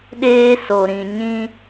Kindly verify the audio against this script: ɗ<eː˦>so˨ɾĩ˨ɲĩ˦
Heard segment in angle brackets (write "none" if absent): eː˦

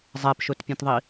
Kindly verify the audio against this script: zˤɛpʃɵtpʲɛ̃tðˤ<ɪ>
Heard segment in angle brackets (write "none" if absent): i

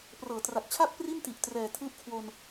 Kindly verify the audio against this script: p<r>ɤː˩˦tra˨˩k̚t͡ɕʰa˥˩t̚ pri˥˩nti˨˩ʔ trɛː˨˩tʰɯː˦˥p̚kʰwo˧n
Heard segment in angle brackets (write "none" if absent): r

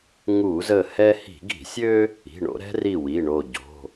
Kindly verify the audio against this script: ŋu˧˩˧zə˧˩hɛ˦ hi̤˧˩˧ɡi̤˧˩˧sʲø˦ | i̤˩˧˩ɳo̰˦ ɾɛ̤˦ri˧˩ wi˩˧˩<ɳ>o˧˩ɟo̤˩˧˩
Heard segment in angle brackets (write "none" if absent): ɳ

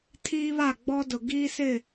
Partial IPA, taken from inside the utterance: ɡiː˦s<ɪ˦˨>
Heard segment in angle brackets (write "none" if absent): ɪ˦˨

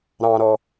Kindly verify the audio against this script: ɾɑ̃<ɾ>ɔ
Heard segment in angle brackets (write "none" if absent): ɾ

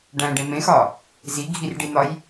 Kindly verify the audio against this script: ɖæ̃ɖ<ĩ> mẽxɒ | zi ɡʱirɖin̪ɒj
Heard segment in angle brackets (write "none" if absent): ẽ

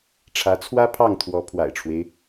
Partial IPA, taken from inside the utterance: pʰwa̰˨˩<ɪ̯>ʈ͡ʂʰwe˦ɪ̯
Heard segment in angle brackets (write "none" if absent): ɪ̯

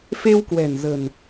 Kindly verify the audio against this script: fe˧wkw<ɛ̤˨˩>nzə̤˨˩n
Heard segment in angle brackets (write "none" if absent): ɛ̤˨˩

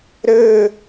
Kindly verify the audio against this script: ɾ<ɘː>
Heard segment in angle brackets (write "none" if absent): ɘː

